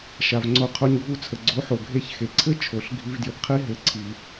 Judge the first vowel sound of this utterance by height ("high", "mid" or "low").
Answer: low